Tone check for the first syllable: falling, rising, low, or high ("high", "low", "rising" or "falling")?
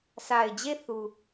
low